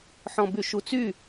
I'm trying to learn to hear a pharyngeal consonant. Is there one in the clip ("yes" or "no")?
yes